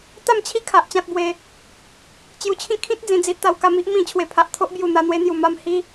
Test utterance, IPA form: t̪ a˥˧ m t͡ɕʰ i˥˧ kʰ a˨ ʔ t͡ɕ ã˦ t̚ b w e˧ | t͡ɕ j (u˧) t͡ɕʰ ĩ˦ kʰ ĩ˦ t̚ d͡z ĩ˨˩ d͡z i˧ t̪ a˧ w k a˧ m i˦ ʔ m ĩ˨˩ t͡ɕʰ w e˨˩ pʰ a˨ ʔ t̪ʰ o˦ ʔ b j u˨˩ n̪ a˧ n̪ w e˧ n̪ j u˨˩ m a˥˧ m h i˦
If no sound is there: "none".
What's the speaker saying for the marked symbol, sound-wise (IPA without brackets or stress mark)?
u˧